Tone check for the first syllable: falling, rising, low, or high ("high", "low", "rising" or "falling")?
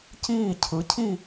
falling